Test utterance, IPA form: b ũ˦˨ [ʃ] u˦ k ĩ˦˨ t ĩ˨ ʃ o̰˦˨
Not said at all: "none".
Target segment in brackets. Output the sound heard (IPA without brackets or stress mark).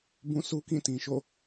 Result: s